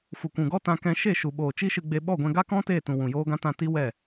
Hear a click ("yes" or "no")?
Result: no